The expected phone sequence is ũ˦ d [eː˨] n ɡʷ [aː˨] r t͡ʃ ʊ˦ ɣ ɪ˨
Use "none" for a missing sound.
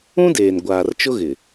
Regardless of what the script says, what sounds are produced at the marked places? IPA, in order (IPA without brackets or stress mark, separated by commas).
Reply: eː˨, aː˨